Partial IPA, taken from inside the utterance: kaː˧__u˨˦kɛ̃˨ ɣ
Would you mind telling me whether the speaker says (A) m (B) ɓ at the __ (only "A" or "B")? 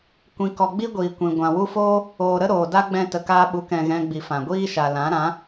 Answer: B